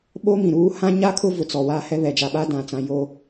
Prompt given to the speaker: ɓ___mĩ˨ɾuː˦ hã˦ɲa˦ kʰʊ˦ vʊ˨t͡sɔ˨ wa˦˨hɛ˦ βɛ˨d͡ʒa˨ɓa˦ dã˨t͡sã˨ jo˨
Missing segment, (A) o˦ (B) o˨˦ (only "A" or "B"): A